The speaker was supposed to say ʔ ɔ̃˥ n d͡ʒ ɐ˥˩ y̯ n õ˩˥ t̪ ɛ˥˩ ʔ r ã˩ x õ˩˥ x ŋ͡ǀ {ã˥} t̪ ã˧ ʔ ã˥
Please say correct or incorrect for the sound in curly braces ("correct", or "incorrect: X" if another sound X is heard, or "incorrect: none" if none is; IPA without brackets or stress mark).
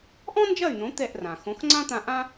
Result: correct